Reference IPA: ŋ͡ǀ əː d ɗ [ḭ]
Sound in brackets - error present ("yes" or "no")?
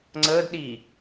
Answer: yes